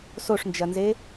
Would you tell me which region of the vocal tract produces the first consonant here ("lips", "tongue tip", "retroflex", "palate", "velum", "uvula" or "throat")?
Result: tongue tip